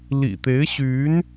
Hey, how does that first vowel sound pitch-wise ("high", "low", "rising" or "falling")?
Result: low